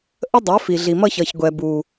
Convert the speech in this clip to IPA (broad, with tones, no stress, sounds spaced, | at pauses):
ʔ ə˦ dˤ ɜ˨˦ f i˨ ɮ i˨ m ʌ˦ ç ʌ˨ ç ɡʷ ɛ˨ b u˨